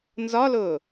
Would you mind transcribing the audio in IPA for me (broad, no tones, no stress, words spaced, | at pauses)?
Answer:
nzɒlʊː